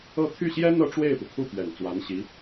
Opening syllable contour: falling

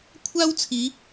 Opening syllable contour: high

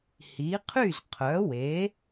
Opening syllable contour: rising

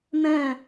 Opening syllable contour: falling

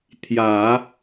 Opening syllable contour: low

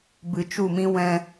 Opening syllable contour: low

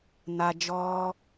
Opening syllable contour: low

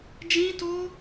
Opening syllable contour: high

